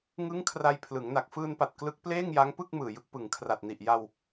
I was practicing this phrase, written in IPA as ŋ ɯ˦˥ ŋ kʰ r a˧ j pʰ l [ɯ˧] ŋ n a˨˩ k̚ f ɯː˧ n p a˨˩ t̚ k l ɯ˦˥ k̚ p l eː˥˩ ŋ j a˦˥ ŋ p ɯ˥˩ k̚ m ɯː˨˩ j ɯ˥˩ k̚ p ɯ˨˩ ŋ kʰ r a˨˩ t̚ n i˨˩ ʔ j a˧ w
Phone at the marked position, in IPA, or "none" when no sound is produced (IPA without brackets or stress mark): ɯ˩˦